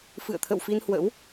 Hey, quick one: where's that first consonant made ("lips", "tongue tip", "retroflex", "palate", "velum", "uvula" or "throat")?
lips